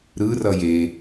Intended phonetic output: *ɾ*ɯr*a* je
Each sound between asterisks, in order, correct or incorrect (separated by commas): correct, incorrect